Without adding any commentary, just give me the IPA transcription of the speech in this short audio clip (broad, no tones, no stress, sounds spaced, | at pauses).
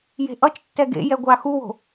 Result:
j e̤ ʔ ʌ t͡ʃ tː ɛ ɡ ḛ j ɛ ɡʷ a x u w o̤